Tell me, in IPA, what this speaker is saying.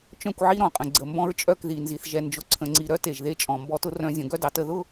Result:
t͡ʃ œ̃˦˨ kʷ ʕ i˦ ɾ ɔ̃˨ qʼ ə̃˨ ɡ͡ǀ ə˨ m b ɔ̃˦ ɹ t͡ʃʼ œ˦˨ k ð i˨ n z i˨ θ ʒ ɛ˨ n d͡ʒ ʊ˨ ǀʰ ə̃˨ ŋ͡ǀ i˨ ɾ œ˦ t e˨ ʒ ð e˦ t͡ʃʼ ɔ̃˨ m b ɔ˦ t ʊ˦ r œ̃˦ zʲ ə̃˨˦ ɡ œ˦ d ɑ˨ t ə˦˨ ð ʊ˦˨

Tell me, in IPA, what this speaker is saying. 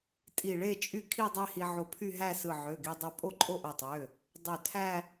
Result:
tʼ i˧˩ ɭ e˥˧ t͡ʃʼ y˥˧ kʰ i˥˧ dˤ e˥˧ h i˧ ʕ o˧ pʰ y˥˧ ɦ æ˥˧ s ɯ˧˩ ʕ ø˩˧˩ ɡ i˧ dˤ o˧ pʼ o˥˧ ǃʼ o˥˧ ʔ o˧˩ tˤ ø˩˧˩ | dˤ ø˧˩ tʰ æ˥˧

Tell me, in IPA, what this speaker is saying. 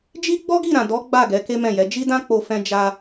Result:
d͡ʒ i˦ ɡ͡b ɔ˦ ɡ i˦˨ ɾ ã˨ d ɔ˨˦ ɡ͡b a˦˨ ɡ ɛ˨˦ k e˦ m ɛ̃˦˨ j ɛ˨˦ d͡ʒ i˦ d ã˦ k͡p o˧ f ɛ̃˧ d͡ʒ a˧

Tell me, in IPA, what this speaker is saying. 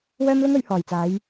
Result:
w œː˥ m l ʊ˥ ŋ ɵ˨˥ ɥ h ɔː˨˩ j t͡s aː˨˧ j

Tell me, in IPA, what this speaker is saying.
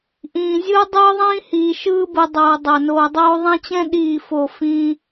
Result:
ʔ ĩː˨ zʲ ɯː˦ dˤ ɯː˦ ðˤ ĩː˦ h iː˨ ʃ ɯː˦ b ɯ˨ dˤ oː˨ dˤ o˨ n oː˨ dˤ oː˦ ðˤ ɛ̃˦ t͡ɕ ɛ̃˦ ɗ iː˦˨ f o˦˨ f ĩː˦

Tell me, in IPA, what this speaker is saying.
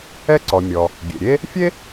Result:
ɛ˧ ǀ ɔ˩ mʲ ɔ˩ | ɡʲ ḛ˩ ɾʲ e˥ | fʲ e˥

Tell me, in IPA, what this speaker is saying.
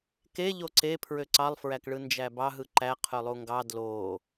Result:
k e ʎ o ǀ e pʰ ɹ ø ǀ ɑ lˠ f ɹ æ k ɭ ɯ n d͡ʒ æ b ɑ ɦ ɯ ǃ æ qʰ ø lˠ u ŋ ɡ ɑ d l o

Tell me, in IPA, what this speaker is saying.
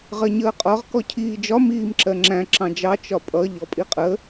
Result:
ʁ ɜ ɲ əː qʼ ɒ ʁ k ɔ cʰ iː d͡ʒ ɒ m iː m ǁ ɜ ŋ͡ǁ æ̃ ǁ ɑ̃ d͡ʒ ɑ t͡ʃ ɒ pʼ ʌ ʎ ɔ pʼ i qʼ ə

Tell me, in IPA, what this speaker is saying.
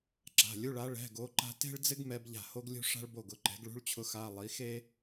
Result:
ǁ a̤˩˧˩ lʲ u˧˥˧ ɭ a˧˥ ɭ ɛ̤˧˥˧ ɡ o˧˥ ǃ a̤˥ t e̤˥ ɭ d͡z ɪ˥ ɡ m ɛ˥ b ʎ a̤˥˩ h o˥ ɡ lʲ ṳ˥ ʂ a̤˥ ɭ b o˥˩ ɡ ʊ˩˧˩ ǃ ɛ̤˩˥ ɡ ɭ ṳ˧˥˧ ɭ t͡ɕʰ ʊ˧˥ x a˧˥˧ lˠ i˩˥ x e˥

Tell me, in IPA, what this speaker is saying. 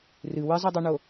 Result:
r ɨ w ɨ zˤ ɛ dˤ o ɳ o

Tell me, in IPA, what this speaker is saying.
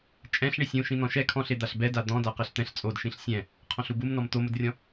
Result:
t͡ʃʼ ɛ̃ ɬ ɳ i sʲ ũ ʃ ĩ n̪ ɔ̃ ʃ ɛ kʰ ɔ̃ ɬ e d̪ a ɬ b ɛ d a d̪ ɔ̃ d a q ɛ ɬ t̪ ɛ̃ ɬ t͡sʼ o d ʃ ĩ ɬ sʲ ɛ̃ | qʰ ɔ̃ ɬ u b u m n ɔ m t̪ o m ʊ d rʲ ɔ̃

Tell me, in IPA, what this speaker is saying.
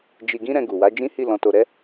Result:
d͡ʒ i˧ ɡ ĩ˦ ɾ ɛ̃˧ ɡ u˨ w a˨˦ d͡ʒ ĩ˦ h i˦˨ l ɔ̃˨ t o˨ ɾ ɛ˧

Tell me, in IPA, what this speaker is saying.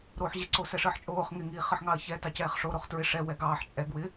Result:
ɾ oː ħ ʑ ɪ ǀ o s ɛ ʂ əː ħ t͡ʃʼ oː χ ŋ ɪ ŋ iː χ ə ħ ŋ ɑ ɐ̯ ç ɛ t ɑ c ɛː χ ʂ o ɾ o χ t ɹ ɪ ʂ ɛ w ɛ ɡ ɑː ħ t͡ʃʼ ɛ ɡ w ɪ

